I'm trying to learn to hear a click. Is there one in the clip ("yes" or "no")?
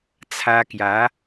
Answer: no